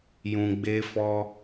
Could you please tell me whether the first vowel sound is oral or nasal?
nasal